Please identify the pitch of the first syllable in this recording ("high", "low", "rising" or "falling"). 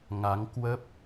rising